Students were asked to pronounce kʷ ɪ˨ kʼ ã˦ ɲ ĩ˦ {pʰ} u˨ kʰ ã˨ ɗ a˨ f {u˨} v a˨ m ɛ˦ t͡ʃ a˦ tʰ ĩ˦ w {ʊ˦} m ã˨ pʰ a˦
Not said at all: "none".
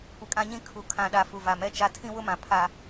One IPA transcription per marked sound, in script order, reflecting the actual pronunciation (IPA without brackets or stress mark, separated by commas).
kʰ, u˨, ʊ˦